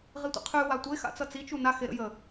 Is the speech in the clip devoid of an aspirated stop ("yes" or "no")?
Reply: no